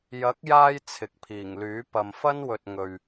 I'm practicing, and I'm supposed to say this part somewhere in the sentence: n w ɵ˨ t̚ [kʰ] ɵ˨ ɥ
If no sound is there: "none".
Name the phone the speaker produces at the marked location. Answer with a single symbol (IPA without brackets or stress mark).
ŋ